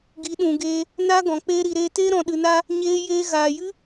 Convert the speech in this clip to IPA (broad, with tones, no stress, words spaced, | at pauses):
ɡi˨˦ɗũ˨ɡeː˧ | na˦ɡɔ̃˨ k͡pe˧ɾi˨ɾe˧te˦ ɾɔ̃˨ɗɨ˨na˧ | ɲeː˦jeː˦ ɣaː˨jɨ˦